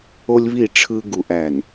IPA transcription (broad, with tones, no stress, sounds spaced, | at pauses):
o˦ lʲ β i˦˨ ʈ͡ʂʰ ɯ˦ ɡ u˨ ʔ æ˨ n